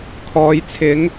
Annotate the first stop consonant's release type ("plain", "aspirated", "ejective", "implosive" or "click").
aspirated